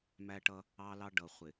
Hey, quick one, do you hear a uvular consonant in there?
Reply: yes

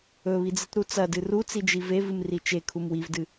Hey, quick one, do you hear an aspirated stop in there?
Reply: yes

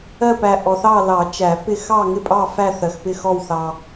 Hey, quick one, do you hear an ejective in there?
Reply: yes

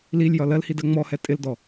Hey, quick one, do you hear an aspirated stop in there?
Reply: no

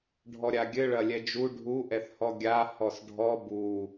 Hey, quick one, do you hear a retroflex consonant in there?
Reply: yes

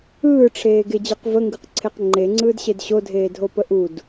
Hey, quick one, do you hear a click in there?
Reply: yes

